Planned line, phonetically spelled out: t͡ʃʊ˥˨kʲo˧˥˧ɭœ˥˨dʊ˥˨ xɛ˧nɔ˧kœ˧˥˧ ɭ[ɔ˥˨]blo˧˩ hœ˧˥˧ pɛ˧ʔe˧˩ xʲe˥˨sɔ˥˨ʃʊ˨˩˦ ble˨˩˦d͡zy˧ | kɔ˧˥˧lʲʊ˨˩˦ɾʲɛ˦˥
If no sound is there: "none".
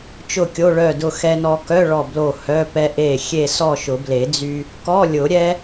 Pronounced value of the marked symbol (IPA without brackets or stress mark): ɔ˧˩